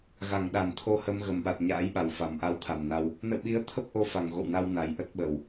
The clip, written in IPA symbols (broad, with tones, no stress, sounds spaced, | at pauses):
ɣ a˧˩ ŋ ɗ a˧˩ n t̪ʰ o˧ h ə˧ m ɣ ə˨˩ m ɓ a˨˩ t̚ ɲ a̰ː˧˥ j ɓ a˨˩ w f a˧˩ m ʔ a˧ w t̪ʰ a˨˩ m n a˧ w | n ə̰˧˨ w ɓ i˨˦ ə̯ t̪ʰ ə˦˥ p̚ ʔ o˧ f a˧˩ ŋ ɣ o̰˧˨ w n a˧ w n a˨˩ j ʔ ə˦˥ t̚ ɓ ə˨˩ w